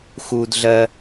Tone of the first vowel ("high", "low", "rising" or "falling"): high